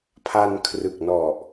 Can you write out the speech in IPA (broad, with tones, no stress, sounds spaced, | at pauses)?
pʰ a˧ n kʰ r ɯ˨˩ k̚ n ɔ˨˩ ʔ